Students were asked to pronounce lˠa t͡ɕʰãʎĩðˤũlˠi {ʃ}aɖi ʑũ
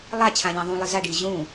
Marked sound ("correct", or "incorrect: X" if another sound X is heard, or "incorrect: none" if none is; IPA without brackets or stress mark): incorrect: z